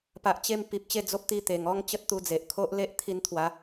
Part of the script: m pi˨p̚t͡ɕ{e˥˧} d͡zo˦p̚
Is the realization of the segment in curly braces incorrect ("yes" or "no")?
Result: no